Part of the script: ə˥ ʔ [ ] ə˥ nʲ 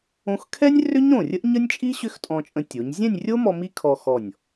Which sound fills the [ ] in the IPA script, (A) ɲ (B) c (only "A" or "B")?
A